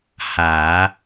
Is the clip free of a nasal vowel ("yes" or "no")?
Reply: yes